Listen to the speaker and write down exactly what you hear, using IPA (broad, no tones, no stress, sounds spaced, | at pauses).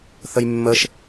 θ ə j mː ə ʃ